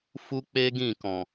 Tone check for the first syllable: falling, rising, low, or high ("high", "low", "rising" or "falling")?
high